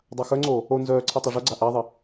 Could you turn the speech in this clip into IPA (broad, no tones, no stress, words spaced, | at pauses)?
dˤaxœŋ͡ǀoː | o nzœːǀʰe tˤœʐœɡ͡ǀa ʔaðˤe